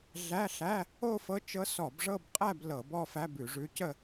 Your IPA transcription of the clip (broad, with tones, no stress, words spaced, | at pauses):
ɮæ˧˥˧ɬæ˧˥˧ | o˥˧fɤ˧˥t͡ʃɤ˧˥ sɔ˧˩˧bʐɤ˥˧bqʼæ˥˧b lɤ˧˩˧bɔ˥˧fæ˧˥˧b ʉ˧˩˧ʐʉ˧˥cə˥˧